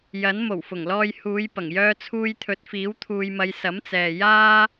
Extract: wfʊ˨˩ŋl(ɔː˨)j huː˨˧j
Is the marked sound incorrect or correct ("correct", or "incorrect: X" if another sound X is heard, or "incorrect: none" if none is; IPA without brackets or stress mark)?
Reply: incorrect: ɔː˧